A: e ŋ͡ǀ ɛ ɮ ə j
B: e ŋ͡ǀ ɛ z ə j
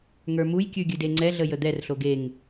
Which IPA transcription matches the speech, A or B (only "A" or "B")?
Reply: A